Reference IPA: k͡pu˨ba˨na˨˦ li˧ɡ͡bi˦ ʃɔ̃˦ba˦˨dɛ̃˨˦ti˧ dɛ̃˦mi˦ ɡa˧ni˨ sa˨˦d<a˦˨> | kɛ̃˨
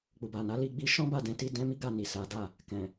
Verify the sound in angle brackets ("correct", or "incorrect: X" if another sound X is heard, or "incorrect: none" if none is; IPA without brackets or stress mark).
correct